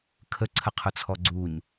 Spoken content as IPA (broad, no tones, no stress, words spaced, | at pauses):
kʰəǀʰəqʰʊt͡sʰɔ ɡ͡ǀuɲ